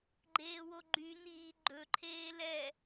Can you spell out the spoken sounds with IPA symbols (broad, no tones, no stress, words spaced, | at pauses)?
ɡ͡ǃeːwoɡ͡ǃy niː ɡ͡ǃɵ ǃʰeːlɛ